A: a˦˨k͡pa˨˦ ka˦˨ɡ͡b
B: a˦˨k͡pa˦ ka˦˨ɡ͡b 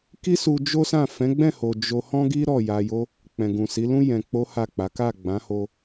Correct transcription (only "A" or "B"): A